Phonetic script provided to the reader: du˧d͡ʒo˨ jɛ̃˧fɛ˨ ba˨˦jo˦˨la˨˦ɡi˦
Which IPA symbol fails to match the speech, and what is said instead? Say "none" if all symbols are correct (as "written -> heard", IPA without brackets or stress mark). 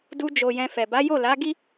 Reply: none